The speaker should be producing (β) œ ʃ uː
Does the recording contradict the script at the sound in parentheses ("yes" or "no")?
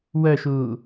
yes